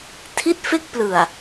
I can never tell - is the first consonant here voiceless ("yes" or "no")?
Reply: yes